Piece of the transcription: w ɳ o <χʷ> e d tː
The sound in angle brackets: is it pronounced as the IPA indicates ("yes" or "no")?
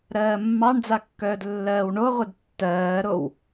no